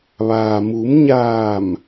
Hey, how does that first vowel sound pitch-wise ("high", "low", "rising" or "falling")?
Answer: low